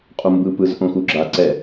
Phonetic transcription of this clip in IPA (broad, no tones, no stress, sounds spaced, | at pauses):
qʼ u m b ɯ p ɯ z ʔ õ x u ɡ͡ǁ a ǀ ɛ